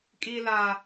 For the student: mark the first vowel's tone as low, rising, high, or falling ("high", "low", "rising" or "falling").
high